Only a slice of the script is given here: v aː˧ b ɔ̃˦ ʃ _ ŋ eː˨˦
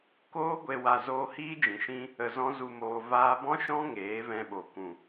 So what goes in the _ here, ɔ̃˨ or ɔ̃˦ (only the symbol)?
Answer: ɔ̃˦